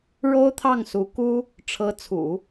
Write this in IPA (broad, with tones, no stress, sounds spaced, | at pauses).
ɻ o˥ ʊ̯ t̪ʰ ɑ˥˩ ŋ s u˧˥ k u˥ | ʈ͡ʂʰ ɤ˧˥ t͡sʰ ṵ˨˩˦